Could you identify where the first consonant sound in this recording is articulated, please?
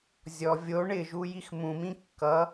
alveolar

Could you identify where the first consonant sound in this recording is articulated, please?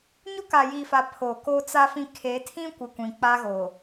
palatal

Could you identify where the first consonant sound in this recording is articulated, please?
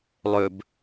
alveolar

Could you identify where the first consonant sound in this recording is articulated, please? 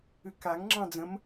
velar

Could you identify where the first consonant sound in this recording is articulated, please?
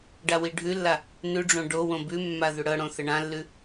retroflex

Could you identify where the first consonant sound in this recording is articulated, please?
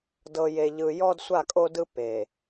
alveolar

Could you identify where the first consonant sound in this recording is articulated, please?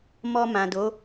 labial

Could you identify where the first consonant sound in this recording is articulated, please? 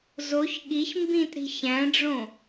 alveolar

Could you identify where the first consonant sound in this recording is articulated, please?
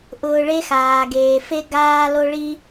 glottal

